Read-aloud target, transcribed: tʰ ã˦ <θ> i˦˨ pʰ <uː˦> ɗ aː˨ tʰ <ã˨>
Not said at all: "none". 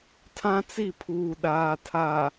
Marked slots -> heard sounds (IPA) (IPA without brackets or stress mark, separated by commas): t͡s, uː˨, a˨